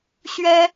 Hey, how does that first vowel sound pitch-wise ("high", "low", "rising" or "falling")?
high